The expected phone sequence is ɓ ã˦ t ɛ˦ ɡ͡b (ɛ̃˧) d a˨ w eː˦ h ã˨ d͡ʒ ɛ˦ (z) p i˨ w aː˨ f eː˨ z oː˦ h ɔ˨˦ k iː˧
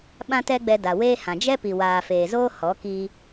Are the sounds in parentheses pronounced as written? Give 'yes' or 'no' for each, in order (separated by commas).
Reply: no, no